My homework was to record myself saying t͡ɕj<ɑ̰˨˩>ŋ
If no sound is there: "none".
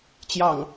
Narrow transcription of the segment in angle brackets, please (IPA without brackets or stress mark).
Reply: ɑ̰˨˩